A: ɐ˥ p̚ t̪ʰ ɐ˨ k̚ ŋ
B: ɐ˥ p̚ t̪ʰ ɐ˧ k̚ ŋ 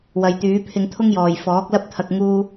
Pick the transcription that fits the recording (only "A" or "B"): B